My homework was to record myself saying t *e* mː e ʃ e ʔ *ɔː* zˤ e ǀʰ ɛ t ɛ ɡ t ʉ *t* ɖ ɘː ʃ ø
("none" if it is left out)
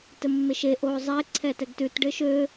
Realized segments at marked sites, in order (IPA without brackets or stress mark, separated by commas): ɘ, oː, t